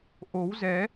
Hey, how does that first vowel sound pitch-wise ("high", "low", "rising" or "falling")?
rising